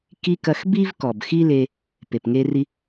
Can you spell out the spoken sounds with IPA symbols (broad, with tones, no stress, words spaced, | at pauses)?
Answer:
ki˧ kɐ˧xbi˥v kɔ˩bxi˥le˧ | pe˩pŋe˧ri˧